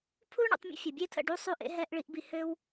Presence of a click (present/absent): absent